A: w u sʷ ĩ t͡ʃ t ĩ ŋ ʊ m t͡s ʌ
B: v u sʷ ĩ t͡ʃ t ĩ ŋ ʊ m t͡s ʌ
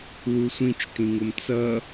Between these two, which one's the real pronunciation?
A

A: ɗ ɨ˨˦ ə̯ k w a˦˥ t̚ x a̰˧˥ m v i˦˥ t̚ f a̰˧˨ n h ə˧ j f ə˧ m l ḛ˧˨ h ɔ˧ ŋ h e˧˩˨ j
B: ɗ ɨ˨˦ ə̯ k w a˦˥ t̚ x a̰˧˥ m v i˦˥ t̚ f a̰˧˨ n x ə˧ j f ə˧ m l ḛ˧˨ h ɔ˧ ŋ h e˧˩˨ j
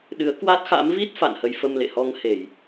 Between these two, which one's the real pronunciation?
A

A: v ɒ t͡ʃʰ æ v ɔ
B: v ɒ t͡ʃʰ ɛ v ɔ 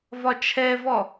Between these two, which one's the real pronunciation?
B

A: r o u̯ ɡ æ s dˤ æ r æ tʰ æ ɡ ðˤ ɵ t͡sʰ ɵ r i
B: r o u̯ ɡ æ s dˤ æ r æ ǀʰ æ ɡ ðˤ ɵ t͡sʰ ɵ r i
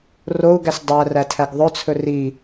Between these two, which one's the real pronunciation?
A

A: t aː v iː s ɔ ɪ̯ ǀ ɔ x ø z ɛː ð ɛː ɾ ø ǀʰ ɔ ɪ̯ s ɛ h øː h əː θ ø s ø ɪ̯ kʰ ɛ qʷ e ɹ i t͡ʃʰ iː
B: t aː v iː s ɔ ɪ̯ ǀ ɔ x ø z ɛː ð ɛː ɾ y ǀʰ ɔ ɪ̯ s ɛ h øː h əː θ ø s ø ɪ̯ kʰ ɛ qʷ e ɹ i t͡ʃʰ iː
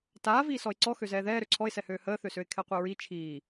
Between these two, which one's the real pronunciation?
A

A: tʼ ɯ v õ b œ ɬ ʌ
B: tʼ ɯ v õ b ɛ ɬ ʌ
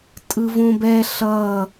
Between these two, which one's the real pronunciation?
B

